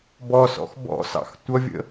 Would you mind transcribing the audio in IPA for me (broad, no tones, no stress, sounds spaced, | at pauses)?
b ɔ s ɔ̰ x b ɔ̰ s ɑ̰ x tʷ ʌ vʲ ə̰